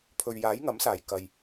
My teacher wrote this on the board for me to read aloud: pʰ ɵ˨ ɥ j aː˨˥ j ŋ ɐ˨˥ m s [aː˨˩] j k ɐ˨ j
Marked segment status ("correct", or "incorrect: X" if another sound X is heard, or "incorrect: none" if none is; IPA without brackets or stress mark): correct